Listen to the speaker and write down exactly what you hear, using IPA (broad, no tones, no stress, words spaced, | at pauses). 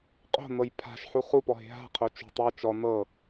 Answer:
qʼo̤nɤj pʰa̤ʃħu χupɔɦe̤ ɦa̤qʰo t͡ʃo̤tˤ ɤ t͡ʃɔ nɤ